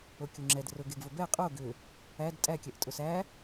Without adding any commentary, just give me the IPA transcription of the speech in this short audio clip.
okʲoŋ͡ǁɛd rʊɡeɡvʊ bɛ qʼo ɡʏ | æd tʼækʲɛʔ tʼʊsæ

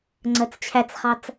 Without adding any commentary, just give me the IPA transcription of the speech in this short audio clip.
ŋ͡ǀɜt͡st͡ɕʰæt͡sχɑt͡s

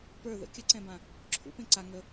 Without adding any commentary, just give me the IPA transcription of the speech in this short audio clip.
pə˞ ðə̰ kʲəǀɛ̃bã | ǁʰṵpẽ ǀa ŋə

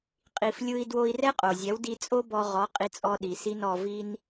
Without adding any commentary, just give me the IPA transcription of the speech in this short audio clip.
qʼi˩flʲɯ˧i̯ dwo˧i̯rɛ˥qʼo˩zʲɛ˩˥w di˧t͡sʼo˥bɔ˧ ʁɔ˩˥qʼi˩˥t͡sʼɔ˧ ɗi˩si˧n ɔ˧vi˥n

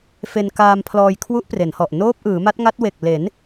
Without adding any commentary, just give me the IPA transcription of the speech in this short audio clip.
fe˧n kaː˧mpʰlɔː˧j kʰwu˦˥ʔpre˩˦nhɔ˨˩ʔ noː˦˥p̚ʔɯː˩˦ma˦˥t̚ŋa˦˥t̚ we˨˩k̚ le˩˦n

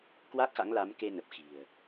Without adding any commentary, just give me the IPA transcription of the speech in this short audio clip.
kwa˦˥k̚xa̰˧˥ŋla˨˦m ke˧ nə˨˩p̚xi̤˨˩ə̯

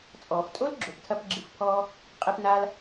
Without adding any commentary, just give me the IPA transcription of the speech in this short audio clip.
t͡sʼɔː˩ftʼo˥lɡ͡ǁo˩ptʰɐ˧p ɡ͡ǁɨ˧fpʰɔː˥ | qʼe˧pnaː˧l

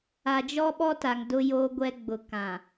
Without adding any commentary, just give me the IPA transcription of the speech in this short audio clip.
a˨d͡ʒɔ˦ɓɔ˦ta˨ŋ dʊ˦joː˦ɡʷɛ˦ ɡ͡bʊ˨kã˨

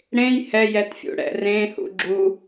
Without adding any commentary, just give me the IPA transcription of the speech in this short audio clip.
ɽẽj hɛjɛtfʲṵ ɽɛ̰rẽ hṵɡ͡ǁu

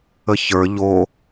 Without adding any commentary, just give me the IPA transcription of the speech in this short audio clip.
əçə˞ ʎo

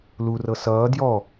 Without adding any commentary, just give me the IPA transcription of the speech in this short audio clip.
lurɤ sʌː djɔ

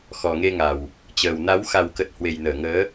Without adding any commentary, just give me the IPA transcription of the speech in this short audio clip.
xɔ˨˩ŋe˧ŋa˨˩w | t͡ɕəː˨˩wna˨˦w xa˨˩wkə˨˩t̚ hwe˨˩jnəː˧˩ŋəː˨˦

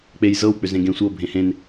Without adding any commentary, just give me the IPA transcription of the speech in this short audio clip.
k͡pej zɤw k͡pʏzẽɡẽ sʷɤ bʱẽhẽn

